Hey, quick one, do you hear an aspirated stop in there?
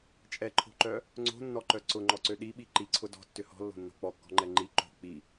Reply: yes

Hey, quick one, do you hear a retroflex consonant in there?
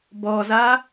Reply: no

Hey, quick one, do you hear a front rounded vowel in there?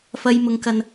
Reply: no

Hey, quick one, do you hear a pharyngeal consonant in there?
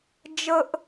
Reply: no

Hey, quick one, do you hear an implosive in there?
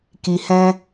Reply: no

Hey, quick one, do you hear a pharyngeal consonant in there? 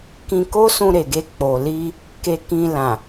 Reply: no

